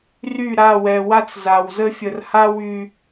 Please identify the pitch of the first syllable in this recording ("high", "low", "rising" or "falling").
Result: falling